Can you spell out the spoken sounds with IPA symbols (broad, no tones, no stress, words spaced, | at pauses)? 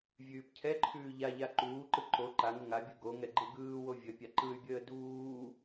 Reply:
vʲʉːpcʰɛǃʰʉː ʎaʎa ǃuːǃɯ ǃo ǃaŋə ŋabʲɯ ɡoŋɛ ɡ͡ǃɯɡɯːwo vʲə pʲaǃɯy̯bʲəː duː